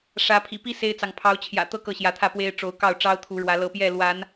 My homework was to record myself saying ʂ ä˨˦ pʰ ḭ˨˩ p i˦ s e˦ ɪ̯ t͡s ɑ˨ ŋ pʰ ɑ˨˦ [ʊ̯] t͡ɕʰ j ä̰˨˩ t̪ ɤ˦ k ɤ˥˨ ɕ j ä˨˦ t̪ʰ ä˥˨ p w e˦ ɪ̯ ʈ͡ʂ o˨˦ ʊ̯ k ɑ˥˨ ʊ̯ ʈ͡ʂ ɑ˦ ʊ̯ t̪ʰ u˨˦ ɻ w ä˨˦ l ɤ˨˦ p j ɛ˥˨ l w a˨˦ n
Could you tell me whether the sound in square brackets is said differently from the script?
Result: no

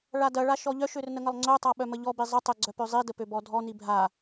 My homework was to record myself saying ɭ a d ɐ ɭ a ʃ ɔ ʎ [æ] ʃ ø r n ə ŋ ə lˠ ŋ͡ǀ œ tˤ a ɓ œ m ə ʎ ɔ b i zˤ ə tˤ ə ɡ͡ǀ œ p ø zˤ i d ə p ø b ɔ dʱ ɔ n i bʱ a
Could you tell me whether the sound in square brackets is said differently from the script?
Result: yes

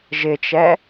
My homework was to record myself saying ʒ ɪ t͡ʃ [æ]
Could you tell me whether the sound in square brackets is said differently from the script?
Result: yes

